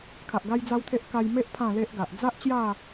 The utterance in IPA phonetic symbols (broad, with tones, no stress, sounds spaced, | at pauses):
kʰ a˨ ʔ ɡ a˦ j d͡z a˦ w t̪ʰ e˦ ʔ k a˧ j m e˦ ʔ pʰ ã˥˧ l e˦ ʔ ɡ a˨ ʔ d͡z a˦ ʔ t͡ɕ j a˥˧